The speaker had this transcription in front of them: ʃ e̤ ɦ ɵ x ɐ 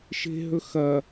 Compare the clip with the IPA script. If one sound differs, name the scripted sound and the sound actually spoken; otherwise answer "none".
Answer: none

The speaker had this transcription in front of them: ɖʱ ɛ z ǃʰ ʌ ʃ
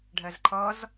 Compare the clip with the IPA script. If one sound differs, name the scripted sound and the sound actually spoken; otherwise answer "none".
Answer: ʃ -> z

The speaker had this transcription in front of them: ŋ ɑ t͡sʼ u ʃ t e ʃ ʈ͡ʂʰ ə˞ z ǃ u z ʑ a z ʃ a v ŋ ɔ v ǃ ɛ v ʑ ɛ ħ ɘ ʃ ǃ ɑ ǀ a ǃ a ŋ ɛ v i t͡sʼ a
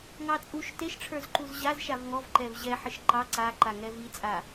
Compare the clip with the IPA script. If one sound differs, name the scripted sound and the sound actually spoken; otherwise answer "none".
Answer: none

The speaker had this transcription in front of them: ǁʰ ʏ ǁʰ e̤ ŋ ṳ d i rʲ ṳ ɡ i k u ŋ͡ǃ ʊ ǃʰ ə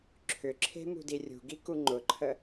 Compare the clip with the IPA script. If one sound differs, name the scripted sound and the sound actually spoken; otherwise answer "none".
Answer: ŋ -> m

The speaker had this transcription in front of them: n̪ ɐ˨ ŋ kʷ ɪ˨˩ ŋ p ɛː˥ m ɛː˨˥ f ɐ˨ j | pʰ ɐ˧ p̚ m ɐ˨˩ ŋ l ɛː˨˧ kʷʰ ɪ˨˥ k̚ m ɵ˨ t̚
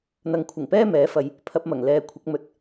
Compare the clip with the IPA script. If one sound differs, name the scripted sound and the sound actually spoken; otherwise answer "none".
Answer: kʷ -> kʷʰ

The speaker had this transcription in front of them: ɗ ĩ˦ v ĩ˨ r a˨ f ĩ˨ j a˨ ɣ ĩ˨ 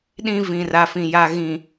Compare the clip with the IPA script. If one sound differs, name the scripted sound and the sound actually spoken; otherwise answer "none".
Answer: none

